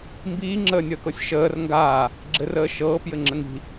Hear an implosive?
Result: no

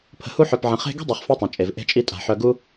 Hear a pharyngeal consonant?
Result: yes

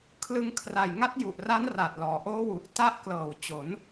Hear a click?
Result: no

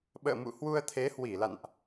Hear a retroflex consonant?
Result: no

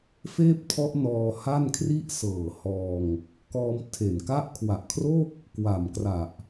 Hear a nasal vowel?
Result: no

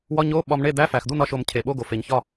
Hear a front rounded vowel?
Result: no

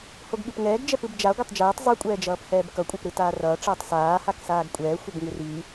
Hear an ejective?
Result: yes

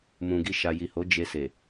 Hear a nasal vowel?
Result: yes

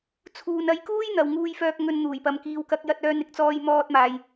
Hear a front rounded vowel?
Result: yes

